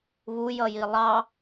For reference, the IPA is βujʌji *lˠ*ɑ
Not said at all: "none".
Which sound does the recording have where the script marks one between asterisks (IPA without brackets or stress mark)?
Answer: lˠ